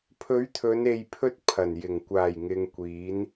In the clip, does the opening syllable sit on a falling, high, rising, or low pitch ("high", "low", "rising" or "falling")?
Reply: rising